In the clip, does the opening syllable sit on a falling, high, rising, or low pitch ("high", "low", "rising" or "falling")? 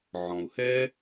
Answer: low